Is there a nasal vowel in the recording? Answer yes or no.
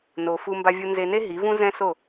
yes